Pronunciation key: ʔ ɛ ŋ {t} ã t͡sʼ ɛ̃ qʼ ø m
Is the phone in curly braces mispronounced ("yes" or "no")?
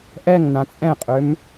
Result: yes